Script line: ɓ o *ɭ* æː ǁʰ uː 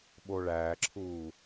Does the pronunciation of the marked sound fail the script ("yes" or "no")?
no